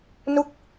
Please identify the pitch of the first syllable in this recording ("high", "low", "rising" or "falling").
falling